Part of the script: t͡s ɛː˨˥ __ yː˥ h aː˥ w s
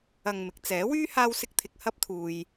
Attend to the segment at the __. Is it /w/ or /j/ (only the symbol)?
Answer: w